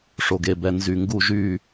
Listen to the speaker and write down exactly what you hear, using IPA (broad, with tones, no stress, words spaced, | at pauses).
ʂo˧ɡ e˧bɛ˧ nzy˧˩ŋɡu˥˧ ʒy˥˧